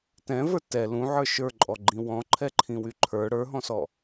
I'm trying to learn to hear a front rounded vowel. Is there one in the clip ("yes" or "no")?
yes